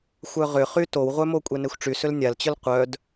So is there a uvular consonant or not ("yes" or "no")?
yes